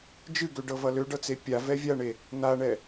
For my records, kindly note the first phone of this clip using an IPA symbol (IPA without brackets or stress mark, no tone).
d͡ʒ